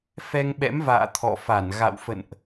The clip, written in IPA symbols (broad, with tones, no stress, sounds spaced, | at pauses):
f ɛ˧ ŋ ɓ ɛ̰˧˥ m v a̰ː˧˨ t̪ʰ ɔ̰˧˨ f a˧˩ n ɣ a̰˧˨ w f ə̰˧˨ n ʔ